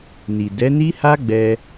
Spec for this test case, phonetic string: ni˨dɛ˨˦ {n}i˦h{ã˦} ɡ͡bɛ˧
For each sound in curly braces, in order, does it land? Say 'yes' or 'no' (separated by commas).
yes, no